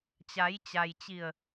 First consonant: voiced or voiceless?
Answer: voiceless